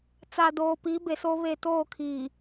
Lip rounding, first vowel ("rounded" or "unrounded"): unrounded